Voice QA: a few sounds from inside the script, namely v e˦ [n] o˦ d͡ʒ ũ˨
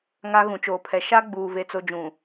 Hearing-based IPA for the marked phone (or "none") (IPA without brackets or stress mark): t͡s